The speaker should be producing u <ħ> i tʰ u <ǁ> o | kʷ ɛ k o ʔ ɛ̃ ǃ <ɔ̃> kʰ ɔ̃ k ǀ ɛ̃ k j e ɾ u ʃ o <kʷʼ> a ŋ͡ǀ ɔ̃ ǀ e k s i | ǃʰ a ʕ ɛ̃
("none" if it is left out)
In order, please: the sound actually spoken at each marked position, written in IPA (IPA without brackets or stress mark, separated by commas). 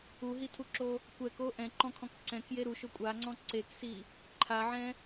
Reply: ɦ, ǁ, ɔ̃, kʷʼ